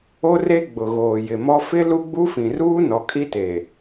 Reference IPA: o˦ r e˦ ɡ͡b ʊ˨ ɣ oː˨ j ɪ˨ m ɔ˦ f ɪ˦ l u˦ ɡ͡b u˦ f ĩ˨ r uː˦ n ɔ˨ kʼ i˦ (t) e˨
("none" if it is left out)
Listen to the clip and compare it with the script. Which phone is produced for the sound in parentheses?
t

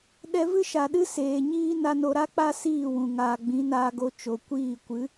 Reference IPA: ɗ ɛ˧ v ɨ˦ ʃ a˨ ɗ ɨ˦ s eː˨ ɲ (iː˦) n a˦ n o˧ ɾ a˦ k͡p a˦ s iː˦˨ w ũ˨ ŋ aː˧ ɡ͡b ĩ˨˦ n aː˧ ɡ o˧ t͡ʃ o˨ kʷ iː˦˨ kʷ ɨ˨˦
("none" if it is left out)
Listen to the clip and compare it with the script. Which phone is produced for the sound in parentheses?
iː˦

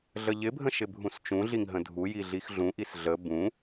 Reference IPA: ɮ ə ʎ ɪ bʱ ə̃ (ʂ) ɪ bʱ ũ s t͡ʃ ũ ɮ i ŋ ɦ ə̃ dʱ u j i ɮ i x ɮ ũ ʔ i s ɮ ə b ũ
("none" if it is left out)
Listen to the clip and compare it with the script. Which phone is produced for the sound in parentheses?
ʃ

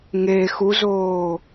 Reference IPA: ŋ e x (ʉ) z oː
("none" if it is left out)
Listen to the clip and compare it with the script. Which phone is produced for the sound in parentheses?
u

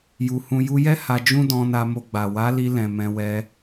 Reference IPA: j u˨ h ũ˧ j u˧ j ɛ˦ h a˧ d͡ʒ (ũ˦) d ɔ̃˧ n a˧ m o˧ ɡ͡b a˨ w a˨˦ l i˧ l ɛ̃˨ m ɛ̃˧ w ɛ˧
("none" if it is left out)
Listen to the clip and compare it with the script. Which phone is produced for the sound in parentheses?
ũ˦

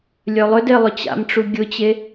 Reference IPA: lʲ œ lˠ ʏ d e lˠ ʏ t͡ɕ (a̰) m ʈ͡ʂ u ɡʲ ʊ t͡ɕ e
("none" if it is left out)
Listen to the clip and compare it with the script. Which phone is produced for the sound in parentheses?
a̰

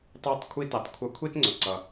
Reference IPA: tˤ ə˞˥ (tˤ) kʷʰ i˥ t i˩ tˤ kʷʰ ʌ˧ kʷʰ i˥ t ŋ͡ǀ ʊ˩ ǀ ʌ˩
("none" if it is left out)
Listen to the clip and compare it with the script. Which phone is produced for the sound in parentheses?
tˤ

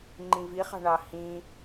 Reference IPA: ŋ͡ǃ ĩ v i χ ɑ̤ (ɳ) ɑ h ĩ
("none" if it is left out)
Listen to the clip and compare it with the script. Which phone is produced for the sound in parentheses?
ɳ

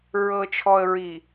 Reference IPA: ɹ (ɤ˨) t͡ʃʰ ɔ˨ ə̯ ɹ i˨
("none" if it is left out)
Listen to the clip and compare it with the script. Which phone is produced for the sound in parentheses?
ɤ˨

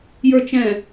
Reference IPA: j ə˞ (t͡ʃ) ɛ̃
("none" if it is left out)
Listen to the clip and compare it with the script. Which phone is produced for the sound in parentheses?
t͡ʃ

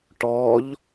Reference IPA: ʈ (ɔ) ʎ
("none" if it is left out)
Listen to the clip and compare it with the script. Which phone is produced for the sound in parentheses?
ɔ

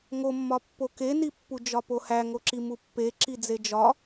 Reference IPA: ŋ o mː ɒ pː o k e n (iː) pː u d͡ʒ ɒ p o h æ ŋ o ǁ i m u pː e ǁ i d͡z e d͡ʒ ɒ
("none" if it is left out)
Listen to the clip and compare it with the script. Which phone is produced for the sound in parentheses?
i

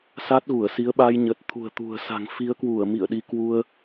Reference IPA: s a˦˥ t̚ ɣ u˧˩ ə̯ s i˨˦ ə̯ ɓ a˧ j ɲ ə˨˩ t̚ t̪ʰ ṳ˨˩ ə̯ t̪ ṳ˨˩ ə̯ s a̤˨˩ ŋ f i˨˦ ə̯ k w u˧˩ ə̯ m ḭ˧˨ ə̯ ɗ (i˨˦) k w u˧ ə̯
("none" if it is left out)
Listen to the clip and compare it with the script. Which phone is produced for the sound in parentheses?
i˨˦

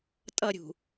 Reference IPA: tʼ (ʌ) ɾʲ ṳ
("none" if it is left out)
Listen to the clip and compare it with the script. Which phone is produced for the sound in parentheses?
ʌ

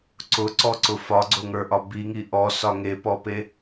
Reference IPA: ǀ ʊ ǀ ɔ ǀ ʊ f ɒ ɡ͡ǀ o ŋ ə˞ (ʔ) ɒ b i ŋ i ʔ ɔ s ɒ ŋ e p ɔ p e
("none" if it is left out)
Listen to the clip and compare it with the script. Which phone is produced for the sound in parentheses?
ʔ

